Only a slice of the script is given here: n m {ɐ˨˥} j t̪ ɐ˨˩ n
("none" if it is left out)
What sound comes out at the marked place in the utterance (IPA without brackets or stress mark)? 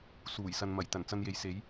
ɐ˨˩